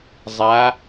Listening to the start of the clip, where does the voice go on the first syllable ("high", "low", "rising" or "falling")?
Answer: rising